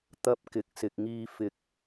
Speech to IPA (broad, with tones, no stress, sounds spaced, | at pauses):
t̪ ɐ˧ p̚ k ɪ˨˥ k̚ s ɪ˨ k̚ ŋ iː˧ f ɪ˧ k̚